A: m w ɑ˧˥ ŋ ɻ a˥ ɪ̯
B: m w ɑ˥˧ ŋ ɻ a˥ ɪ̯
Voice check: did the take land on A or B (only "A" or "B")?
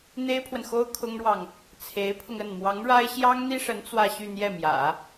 A